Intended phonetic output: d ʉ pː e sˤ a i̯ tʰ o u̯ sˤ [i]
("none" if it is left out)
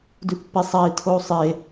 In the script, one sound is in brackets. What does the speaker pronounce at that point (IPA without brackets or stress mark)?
e